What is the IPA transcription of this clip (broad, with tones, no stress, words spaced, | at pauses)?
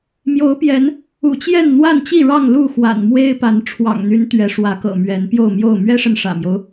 mjo˨˦ʊ̯pjɛ˨˦n | ṵ˨˩t͡ɕjɛ˥˨n n̪wa˥˨nt͡ɕi˥˨ɻɑ˥˨ŋ lu˥˨xwa̰˨˩n mwe˦ɪ̯ pa˨˦n ʈ͡ʂʰwɑ̰˨˩ŋn̪y˨˦n t̪ɥɛ˨˦ʂwä˨˦kɤ̰˨˩mɥɛ˨˦n pjo˥˨ʊ̯mjo˥˨ʊ̯ mɥɛ˦ʂə˨n ʂä̰˨˩mjo˦ʊ̯